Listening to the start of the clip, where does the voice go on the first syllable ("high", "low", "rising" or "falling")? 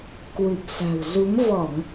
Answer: low